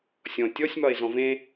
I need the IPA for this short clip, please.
sʲ ɔ̃ tʲ ɔ sʲ m ɒ e̯ z ɔ̃ v ẽ

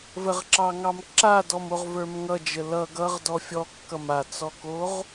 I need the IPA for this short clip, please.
v ə ʁ ǁ ɑ ŋ ɑ m ǁ a d ɔ m o ʁ v ə˞ m ŋ ʌ d͡ʒ ə l ʌ ɡ ʌ ʁ d ɔ fʲ ɔ kː ʌ m a t͡s ɔ k o ʁ

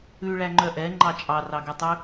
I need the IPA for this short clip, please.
ʉ ɭ æ ŋ͡ǃ œ ʔ ɛ ŋ͡ǃ ɑ t͡ʃʼ ɑ r ɑ ɡ ɛ tˤ ʉ

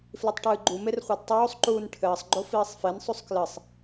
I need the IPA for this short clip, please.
f l i tˤ ʈ ɨː ɡ͡ǃ u m e r χʷ ɛ d tˤ oː sˤ ǃ uː n ʈʰ ɘː sˤ ɡ͡ǃ o f iː sˤ f e n sˤ u sˤ k l ɘ sˤ

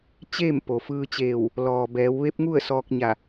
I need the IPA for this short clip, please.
t͡ɕ eː˥˨ m p o˩ f ɯː˧ t͡ɕ eː˧˩ w | l ɔː˩ b ɛː˩˧ w ʋ e˧˥ p̚ ŋ u˥˨ ə̯ s ɔː˧ k̚ ɲ a˧˩

